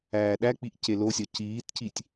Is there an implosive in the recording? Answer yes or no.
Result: yes